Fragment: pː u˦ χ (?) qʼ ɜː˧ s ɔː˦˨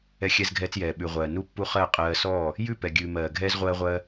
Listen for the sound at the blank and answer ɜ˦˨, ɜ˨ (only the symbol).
ɜ˦˨